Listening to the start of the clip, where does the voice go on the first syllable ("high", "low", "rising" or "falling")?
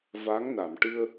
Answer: rising